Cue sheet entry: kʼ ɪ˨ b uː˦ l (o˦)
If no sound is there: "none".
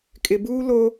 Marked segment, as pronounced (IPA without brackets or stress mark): o˦